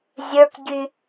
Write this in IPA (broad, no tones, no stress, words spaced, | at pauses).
zʲə˞kɟy